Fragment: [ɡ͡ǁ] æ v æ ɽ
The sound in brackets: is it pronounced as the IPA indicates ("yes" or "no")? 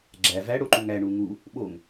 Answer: yes